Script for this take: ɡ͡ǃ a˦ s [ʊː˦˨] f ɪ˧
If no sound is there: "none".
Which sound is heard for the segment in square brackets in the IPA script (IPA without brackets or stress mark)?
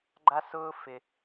ʊː˦